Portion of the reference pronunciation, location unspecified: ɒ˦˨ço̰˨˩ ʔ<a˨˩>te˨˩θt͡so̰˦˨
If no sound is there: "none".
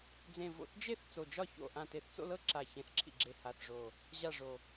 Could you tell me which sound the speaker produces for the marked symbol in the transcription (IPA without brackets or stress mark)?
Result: ã˨˩